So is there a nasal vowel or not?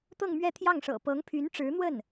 no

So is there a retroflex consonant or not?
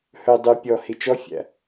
no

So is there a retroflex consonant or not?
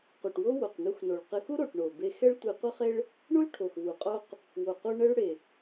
yes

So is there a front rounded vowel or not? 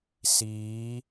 no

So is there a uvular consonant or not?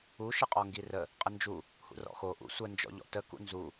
yes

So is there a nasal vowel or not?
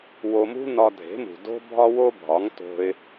no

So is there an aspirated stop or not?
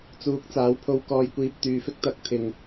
yes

